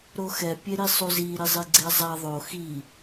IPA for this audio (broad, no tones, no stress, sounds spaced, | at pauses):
ɾ o x ɛ pʲ e ɾ i sˤ u z i ɾ i zˤ i ɡ͡ǀ e zˤ a ðˤ o x i